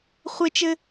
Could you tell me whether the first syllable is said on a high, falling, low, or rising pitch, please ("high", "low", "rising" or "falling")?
high